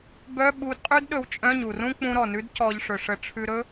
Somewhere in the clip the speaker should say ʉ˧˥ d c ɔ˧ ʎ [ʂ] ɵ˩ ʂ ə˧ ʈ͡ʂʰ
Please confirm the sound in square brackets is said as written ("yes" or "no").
yes